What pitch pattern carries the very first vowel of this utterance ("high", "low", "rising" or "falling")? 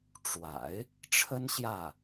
low